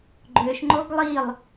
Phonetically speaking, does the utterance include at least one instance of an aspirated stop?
no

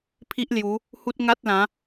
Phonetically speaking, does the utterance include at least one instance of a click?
no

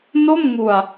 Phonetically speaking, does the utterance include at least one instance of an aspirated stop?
no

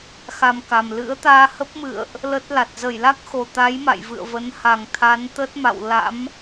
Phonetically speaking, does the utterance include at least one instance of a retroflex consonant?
no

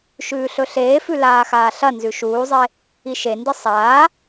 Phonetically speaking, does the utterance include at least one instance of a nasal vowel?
no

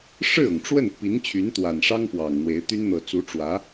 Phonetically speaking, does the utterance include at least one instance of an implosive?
no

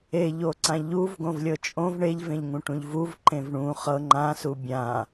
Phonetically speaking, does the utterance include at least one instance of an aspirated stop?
no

